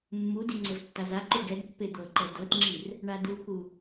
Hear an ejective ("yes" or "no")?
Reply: no